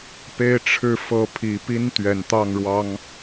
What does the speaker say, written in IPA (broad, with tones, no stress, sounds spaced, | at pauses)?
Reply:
p e˦ ɪ̯ ʈ͡ʂʰ ɻ̩˥˨ f ɤ˨˦ pʰ i˨˩ p i˦ n t̪ ɥ ɛ˨˩ n t̪ ɑ˥˨ ŋ ɻ w ɑ˦ ŋ